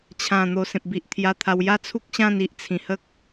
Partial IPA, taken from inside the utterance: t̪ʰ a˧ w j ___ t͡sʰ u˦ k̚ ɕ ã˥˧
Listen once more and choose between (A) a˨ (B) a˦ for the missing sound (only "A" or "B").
B